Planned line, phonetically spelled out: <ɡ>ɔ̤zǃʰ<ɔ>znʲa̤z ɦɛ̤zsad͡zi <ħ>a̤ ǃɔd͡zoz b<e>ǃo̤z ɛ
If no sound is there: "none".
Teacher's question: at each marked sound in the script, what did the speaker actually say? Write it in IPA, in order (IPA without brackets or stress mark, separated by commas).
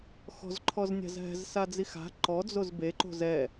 x, ɔ, x, e